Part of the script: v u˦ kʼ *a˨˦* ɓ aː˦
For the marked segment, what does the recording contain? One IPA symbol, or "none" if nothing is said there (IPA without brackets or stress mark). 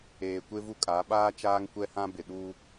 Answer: a˨˦